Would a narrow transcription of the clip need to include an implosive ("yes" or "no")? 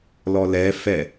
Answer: no